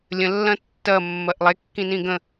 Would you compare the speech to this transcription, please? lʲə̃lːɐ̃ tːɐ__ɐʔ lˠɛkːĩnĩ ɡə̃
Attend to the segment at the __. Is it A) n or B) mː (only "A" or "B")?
B